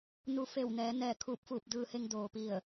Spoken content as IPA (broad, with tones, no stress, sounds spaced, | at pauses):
n u˧ f e˧˩ w n ɛː˩˧ n ɛː˧˩ kʰ uː˧˩ p̚ f uː˧˩ p̚ d ɯː˧ h e˧ ŋ d oː˩ p i˧˩ ə̯